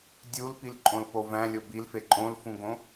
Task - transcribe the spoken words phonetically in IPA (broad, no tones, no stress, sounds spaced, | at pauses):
dʲ u l p i l ǃʼ õ l p o v æ̃ lʲ o b i l f e ǃʼ õ l f ũ ɡ õ